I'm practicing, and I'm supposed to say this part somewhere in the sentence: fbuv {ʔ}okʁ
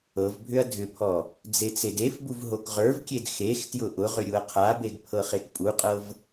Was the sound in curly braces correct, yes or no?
no